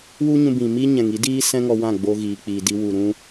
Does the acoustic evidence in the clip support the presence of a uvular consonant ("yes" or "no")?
no